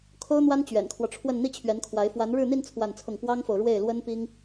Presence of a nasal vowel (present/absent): absent